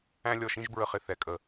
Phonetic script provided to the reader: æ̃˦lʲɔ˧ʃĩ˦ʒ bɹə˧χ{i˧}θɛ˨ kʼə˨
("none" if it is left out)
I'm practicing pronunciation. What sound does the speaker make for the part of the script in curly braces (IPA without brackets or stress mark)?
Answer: ɪ˧